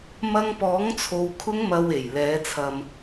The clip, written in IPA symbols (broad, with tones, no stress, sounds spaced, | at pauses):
m ɐ˧ ŋ p ɔː˨˥ ŋ t͡sʰ o˧ w kʰ ʊ˥ ŋ m ɐ˧ w e˨˩ j l ɛː˨˥ t͡sʰ ɐ˧ m